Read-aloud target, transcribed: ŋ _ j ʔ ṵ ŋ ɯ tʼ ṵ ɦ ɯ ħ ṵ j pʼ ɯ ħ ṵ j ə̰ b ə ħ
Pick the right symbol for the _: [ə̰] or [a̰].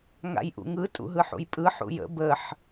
a̰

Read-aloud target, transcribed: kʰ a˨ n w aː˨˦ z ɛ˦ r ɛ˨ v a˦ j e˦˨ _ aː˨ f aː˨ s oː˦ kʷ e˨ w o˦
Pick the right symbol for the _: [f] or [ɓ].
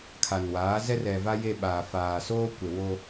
ɓ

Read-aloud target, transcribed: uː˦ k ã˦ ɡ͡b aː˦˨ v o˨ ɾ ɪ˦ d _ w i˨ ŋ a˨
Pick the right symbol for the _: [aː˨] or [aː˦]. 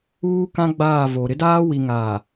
aː˦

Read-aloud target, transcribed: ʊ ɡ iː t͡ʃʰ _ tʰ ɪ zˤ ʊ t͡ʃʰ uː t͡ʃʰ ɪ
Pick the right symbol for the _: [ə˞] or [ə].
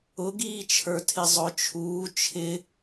ə˞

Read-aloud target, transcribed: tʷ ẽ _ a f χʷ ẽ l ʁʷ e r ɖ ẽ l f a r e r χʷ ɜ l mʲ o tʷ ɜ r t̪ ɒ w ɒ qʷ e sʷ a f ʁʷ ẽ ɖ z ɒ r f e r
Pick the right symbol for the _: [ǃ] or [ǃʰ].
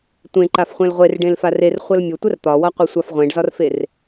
ǃ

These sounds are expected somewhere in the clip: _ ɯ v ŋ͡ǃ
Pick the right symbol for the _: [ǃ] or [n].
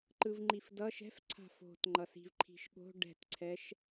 ǃ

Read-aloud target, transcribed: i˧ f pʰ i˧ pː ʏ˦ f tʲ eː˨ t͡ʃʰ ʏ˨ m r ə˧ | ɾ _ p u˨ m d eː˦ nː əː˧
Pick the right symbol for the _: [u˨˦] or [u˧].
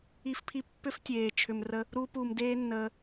u˧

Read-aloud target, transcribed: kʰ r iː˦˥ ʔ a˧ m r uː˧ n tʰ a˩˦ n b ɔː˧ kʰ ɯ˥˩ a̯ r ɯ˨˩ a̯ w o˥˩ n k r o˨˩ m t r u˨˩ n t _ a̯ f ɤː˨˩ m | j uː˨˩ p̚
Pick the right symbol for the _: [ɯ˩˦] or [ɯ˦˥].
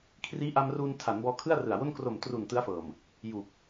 ɯ˦˥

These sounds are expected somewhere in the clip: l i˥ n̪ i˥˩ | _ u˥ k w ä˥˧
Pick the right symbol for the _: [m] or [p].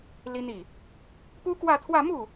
p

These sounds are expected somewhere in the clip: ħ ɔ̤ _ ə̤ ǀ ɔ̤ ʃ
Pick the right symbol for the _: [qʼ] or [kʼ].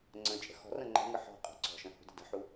qʼ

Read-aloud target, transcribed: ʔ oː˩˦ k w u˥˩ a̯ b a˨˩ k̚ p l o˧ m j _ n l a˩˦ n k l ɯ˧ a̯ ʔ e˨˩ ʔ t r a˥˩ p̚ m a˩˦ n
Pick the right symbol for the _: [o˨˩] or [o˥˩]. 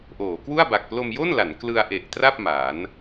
o˥˩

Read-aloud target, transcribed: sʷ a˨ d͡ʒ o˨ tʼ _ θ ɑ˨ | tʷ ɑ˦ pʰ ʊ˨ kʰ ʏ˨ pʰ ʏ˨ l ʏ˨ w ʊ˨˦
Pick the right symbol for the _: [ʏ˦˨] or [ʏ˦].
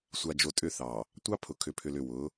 ʏ˦˨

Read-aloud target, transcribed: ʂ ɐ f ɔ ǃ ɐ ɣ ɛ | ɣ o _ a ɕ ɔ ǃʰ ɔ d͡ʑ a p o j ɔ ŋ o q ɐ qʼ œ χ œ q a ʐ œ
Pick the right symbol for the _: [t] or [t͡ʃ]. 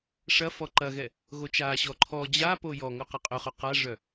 t͡ʃ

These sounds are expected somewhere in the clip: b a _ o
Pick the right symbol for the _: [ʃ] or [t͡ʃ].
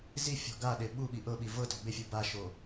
ʃ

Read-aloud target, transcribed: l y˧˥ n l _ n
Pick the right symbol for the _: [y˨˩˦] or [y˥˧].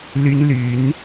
y˨˩˦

